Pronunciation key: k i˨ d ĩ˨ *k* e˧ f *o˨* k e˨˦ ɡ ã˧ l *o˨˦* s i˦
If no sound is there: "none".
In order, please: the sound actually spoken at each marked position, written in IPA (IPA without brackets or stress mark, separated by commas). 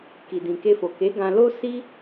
k, o˨, o˦